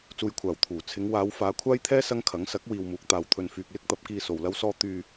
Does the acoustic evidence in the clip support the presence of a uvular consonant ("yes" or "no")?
no